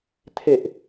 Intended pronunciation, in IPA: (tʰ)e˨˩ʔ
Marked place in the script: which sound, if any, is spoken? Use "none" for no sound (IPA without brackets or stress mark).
tʰ